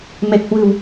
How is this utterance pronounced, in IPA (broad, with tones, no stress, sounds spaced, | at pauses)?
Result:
m e˨˩ k̚ h w ɨ̤˨˩ w